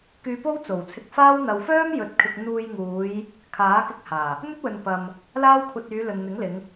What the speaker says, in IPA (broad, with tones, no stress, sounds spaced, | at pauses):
k yː˧ p o˥ w t͡s o˨˩ w t͡sʰ ɪ˧ k̚ f aː˥ w n̪ ɐ˨ w f œː˥ m j ɵ˨ t̚ kʰ ɪ˨ k̚ n̪ uː˧ j ŋ uː˨˧ j | kʰ aː˨˥ k ɪ˧ k̚ h aː˨˩ | n̪ ɵ˥ t̚ w ɵ˨ n p ɐ˧ m | l aː˥ w kʷʰ ɐ˧ t̚ yː˨˧ l ɵ˨ n n̪ ɪ˨˥ ŋ l ɪ˨˧ ŋ